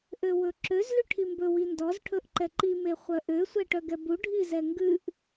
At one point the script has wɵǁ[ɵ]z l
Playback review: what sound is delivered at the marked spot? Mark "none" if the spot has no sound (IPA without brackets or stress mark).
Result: ø